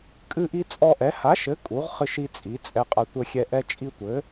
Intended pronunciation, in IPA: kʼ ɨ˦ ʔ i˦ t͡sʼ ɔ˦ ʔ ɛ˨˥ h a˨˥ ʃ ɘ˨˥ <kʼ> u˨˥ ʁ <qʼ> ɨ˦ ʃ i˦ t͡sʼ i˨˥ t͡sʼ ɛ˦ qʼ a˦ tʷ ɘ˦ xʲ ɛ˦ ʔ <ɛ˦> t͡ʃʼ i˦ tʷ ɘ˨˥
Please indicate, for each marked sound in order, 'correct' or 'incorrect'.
correct, incorrect: χ, correct

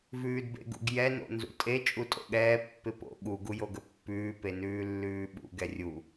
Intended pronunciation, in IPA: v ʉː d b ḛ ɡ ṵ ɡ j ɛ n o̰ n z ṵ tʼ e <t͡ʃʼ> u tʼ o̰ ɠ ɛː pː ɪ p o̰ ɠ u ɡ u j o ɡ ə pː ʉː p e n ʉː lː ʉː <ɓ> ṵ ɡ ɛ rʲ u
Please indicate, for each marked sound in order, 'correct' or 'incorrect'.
correct, correct

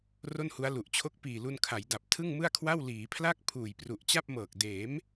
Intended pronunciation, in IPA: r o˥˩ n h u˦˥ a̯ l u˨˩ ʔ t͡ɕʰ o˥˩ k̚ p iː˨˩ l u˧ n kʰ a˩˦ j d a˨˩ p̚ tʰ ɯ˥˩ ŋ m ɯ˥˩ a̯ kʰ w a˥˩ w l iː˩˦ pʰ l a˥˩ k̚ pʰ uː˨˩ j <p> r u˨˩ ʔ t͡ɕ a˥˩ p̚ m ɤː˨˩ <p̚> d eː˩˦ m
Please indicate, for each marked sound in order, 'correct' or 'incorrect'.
correct, incorrect: k̚

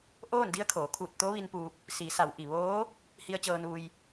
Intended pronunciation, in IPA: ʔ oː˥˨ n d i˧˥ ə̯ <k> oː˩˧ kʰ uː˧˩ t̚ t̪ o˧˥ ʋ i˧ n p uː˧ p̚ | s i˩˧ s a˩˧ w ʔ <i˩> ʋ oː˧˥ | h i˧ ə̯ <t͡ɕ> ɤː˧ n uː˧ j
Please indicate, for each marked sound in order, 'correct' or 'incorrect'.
incorrect: kʰ, correct, correct

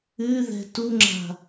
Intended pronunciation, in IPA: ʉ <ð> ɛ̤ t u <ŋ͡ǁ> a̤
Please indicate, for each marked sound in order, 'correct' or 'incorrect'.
correct, correct

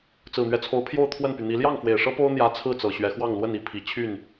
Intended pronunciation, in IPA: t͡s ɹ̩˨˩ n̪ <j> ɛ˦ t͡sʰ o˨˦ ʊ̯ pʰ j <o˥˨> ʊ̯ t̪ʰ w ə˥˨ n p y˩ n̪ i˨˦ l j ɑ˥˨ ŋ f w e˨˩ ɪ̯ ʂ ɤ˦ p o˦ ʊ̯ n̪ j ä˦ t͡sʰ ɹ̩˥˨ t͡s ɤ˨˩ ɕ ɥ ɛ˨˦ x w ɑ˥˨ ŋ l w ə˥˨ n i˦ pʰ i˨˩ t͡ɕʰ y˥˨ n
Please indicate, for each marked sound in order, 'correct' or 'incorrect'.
incorrect: ɥ, correct

